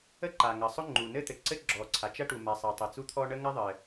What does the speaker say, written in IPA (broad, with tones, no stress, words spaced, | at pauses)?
ə˥ǃa˩ŋə˩ sˤʊ˥ŋ͡ǃu˩ nɘ˥t̪ɘ˩ǀɘ˥ ɡ͡ǁɔ˩ǀʰa˩t͡ʃɐ˥ ʈu˩ma˩sˤa˩ tˤɘ˩t͡su˥t̪ʰɔ˥ ɳə˥ŋɐ˥ðˤɘ˩